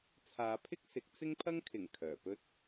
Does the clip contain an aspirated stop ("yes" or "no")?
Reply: yes